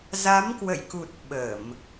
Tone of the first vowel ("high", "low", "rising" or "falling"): rising